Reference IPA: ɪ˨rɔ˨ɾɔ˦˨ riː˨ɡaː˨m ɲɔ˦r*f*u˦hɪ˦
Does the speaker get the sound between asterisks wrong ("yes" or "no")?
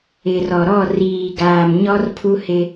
yes